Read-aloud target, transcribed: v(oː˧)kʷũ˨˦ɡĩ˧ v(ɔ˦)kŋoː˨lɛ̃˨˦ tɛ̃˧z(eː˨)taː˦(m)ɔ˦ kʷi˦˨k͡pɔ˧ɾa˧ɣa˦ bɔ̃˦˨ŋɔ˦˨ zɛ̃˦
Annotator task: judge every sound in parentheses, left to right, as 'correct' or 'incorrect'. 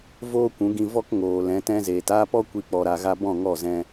incorrect: oː˦, correct, correct, incorrect: p

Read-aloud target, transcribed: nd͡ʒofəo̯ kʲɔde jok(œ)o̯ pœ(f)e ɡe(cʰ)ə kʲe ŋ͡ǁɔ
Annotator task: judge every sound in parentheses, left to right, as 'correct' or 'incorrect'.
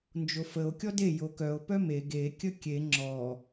correct, incorrect: m, incorrect: kʲ

